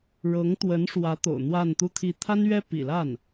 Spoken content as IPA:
ɻ ɤ˧˥ ŋ t̪ w ə˧˥ n ʂ w ä˧˥ t̪ o̰˨˩ ʊ̯ n̪ w a˥˧ n t̪ u˥˧ t̪ʰ i˥˩ t̪ʰ a˥ n ɥ ɛ˥ p ḭ˨˩ l a˥˩ n

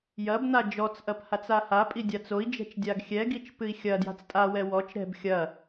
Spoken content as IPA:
j ɐ b n̪ a d͡ʒ ɔ t͡s ʔ ɐ p h a t͡s a h a pʼ i dʲ a t͡s o i̯ d͡ʒ ɛ̤ t͡ʃ dʲ a ɡ xʲ ɛ ɡ i t͡ʃ p ɨ i̯ xʲ ɐ d j a̤ t͡s tʼ a w ɛ w ɔ t͡ʃ ɾ ɛ̤ b xʲ ɐ

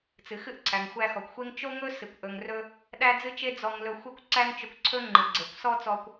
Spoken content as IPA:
t͡s ɨ˩ x ɨ˥ ʔ ǀʰ æ˩ ŋ xʷ æ˧ x ɔ˩ kʷ xʷ e˥ ŋ t͡ʃ o˥ ŋ ɵ˥ s ɨ˩ kʷ ʔ ɵ˩ ŋ r ɵ˧ | ɗ æ˥ d͡z ɨ˥ t͡ʃ e˥ d͡z ɔ˧ ŋ l ɵ˧ xʷ e˥ kʷ ǀ æ˥ ŋ t͡ʃ ɵ˧ kʷ ǀʰ ɵ˥ ŋ͡ǃ ɨ˩ ɡ͡ǀ e˩ kʷ s ɔ˥ t͡s ɔ˧ kʷ

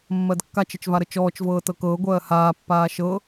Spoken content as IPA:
mː ɜ d kː a t͡ʃ ə t͡ʃ v a ɾ ə t͡ʃ ɔː t͡ʃ v ɤː t ɤ k ɤː ɡʷ ɜː h aː pː aː ʃ ɤ

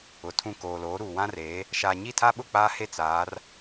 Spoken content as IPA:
ʊ˨ tʰ ũ˦˨ k oː˨ l oː˨˦ ɾ uː˨ w ã˦ r eː˨˦ | ʃ aː˨ ɲ i˦˨ tʰ a˦ ɓ ʊ˦˨ k͡p aː˦ h e˦ t͡s aː˨˦ r

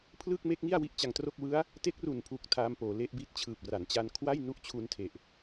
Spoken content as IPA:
pʰ l ɯː˥˩ k̚ m e˦˥ k̚ ŋ i˥˩ a̯ w i˦˥ ʔ t͡ɕ a˧ ŋ t r o˥˩ k̚ w ɯ˦˥ a̯ | t e˦˥ k̚ r u˨˩ n pʰ u˨˩ k̚ tʰ aː˦˥ m p oː˩˦ l e˦˥ ʔ b i˦˥ t̚ t͡ɕʰ ɯː˨˩ p̚ r a˩˦ n t͡ɕ a˧ n kʰ w a˥˩ j n u˦˥ ʔ t͡ɕʰ u˧ n tʰ e˨˩ ʔ

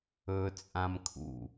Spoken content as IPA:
ɵ t͡sʼ ã m kʰ ṵ

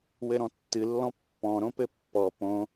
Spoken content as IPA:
w ɘ ɾ ɔ̃ tː ɨ lː ɔ̃ pː ɔ̃ ɾ õ p ɘ pː ɔ p õ

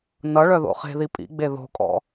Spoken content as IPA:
n ʌ ɭ œ ð o̰ χ e̤ ð i pʼ ḭ ɡ͡b e ð o̤ kʼ ɔ̰

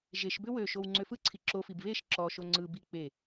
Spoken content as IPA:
ʒ e ʃ b ʏ w ø ʃ o w ŋ͡ǀ ø f ɯ ǀʰ i ǁ o f i b β e ʃ ǁ ɔ ʃ o ŋ͡ǀ ɯ b i k͡p e

